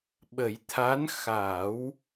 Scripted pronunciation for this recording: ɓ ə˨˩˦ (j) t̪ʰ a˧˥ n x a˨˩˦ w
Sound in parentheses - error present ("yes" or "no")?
no